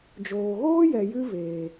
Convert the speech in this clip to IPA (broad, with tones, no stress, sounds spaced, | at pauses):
d͡ʒ oː˨ ɣ oː˦ j ɛ˨ j ɨ˧ v eː˨